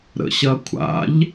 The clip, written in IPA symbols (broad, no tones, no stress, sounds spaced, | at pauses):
ɾ ə̰ ɕ ɐ kʷʰ a̰ ʎ